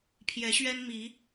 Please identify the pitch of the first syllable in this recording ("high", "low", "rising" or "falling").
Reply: rising